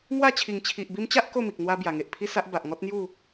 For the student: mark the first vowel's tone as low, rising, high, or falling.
falling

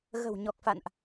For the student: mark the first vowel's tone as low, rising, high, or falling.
low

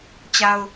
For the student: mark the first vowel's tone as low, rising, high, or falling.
high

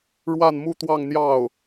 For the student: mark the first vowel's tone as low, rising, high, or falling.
falling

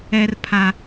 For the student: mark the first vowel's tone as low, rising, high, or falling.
high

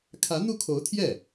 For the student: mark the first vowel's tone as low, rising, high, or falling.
rising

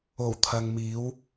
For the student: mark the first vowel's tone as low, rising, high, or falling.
low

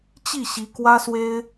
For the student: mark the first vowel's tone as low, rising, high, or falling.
falling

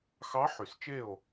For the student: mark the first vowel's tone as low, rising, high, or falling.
rising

